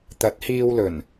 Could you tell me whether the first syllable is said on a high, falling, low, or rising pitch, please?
rising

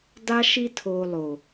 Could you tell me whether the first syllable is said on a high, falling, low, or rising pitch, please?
high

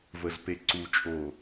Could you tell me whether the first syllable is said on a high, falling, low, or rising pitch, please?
low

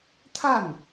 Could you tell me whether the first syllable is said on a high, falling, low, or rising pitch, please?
falling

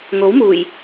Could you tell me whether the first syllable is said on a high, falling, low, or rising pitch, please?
rising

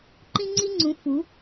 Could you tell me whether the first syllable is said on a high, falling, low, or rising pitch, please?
high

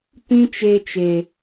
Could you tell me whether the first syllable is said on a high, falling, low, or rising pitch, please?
high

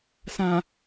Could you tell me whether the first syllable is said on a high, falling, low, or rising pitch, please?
low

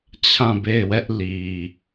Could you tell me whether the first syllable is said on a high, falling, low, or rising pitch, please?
falling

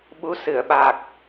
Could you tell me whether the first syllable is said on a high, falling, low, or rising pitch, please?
rising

